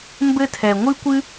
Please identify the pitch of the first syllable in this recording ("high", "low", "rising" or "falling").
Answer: high